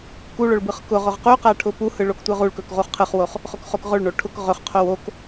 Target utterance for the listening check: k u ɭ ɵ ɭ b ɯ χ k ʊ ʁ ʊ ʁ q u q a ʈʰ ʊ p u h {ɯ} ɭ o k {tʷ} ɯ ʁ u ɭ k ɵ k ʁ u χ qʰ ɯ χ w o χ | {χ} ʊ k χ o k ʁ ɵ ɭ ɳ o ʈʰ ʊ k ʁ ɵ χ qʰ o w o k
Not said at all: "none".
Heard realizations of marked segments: ɯ, tʷ, χ

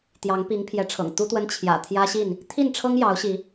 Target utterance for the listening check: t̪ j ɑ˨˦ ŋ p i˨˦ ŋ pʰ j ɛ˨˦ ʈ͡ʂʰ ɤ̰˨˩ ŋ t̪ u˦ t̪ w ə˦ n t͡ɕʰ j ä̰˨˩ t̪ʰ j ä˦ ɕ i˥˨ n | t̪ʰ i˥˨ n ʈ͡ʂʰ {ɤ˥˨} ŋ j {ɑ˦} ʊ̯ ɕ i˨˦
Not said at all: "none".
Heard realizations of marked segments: ɤ˦, ɑ˨˦

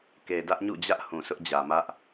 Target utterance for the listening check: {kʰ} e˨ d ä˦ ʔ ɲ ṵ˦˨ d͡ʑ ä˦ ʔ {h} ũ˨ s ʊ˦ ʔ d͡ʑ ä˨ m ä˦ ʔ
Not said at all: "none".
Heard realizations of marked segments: k, h

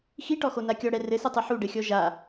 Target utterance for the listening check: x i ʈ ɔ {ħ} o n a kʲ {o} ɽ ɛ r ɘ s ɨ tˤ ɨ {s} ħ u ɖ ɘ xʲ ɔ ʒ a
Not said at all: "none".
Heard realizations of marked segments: x, ɔ, none

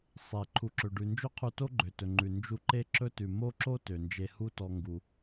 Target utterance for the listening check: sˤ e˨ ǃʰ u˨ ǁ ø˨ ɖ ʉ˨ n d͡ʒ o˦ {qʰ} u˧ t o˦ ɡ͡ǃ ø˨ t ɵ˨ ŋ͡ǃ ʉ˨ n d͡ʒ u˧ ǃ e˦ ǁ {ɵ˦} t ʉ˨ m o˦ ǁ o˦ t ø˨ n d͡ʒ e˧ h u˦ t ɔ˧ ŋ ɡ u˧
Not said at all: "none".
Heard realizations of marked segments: qʰ, ɵ˦

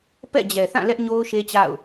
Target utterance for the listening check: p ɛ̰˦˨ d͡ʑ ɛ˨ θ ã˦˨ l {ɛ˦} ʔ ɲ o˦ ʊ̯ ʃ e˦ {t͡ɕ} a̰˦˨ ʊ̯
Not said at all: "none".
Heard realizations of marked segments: ɛ˦, t͡ɕ

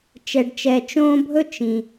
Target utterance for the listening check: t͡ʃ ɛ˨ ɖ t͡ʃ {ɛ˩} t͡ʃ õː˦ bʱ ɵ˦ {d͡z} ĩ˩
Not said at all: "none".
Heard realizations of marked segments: ɛ˨, t͡ʃ

